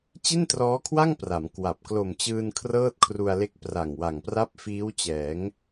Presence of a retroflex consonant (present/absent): absent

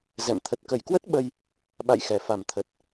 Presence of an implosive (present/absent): present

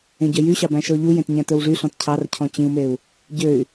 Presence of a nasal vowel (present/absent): present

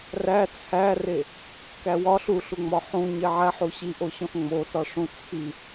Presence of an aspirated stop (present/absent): present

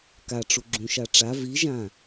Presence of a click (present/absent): present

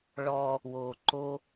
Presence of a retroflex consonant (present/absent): present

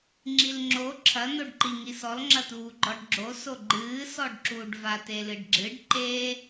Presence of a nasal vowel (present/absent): absent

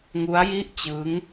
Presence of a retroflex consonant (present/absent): absent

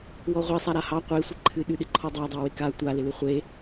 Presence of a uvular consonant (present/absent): present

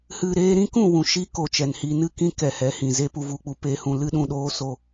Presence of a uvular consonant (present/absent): absent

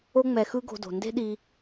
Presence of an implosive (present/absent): present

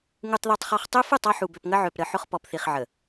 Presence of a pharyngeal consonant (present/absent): present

